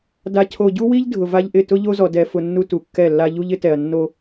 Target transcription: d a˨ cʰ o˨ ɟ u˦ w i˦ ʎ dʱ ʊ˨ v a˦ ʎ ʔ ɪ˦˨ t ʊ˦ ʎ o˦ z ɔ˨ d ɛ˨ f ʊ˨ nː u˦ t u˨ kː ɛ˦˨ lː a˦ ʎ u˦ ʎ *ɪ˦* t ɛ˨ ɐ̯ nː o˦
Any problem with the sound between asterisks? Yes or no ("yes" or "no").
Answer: no